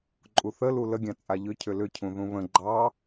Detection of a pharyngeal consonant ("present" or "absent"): absent